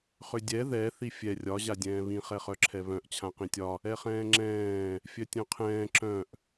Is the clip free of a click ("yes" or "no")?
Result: no